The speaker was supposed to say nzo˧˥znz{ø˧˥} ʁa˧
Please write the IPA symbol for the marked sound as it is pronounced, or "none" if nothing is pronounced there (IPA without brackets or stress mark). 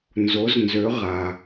ø˧˥